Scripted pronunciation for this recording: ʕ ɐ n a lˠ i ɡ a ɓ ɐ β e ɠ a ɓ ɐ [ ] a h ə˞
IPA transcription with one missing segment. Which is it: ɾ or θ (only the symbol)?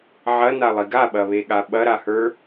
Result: ɾ